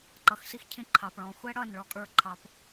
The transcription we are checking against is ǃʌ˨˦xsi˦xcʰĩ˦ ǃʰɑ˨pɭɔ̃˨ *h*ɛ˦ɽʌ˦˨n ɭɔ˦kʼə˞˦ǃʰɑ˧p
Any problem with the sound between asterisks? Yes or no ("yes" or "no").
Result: yes